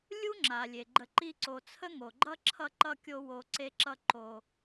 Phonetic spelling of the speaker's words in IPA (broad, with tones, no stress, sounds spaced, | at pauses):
lʲ u˦ ŋ͡ǁ a˩ lʲ e˩ ɡ͡ǃ ə˨ ǃ i˦ ǀ o˨ t͡sʰ ə˥ ŋ o˩ ɡ͡ǃ ʌ˥ ǁʰ ʌ˥ ǃ ʌ˥ kʲ o˦ w o˨ ǀ e˦ ǁ ʌ˦ ǃ o˨